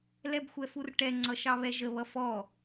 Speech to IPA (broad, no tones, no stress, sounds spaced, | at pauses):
l ɛ b xʷ ɛ f u r ʈ ɛ ŋ͡ǀ ʌ ʃ ɑ β ɛ ʒ ə β ʌ f ɔ